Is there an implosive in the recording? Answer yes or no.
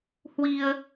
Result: no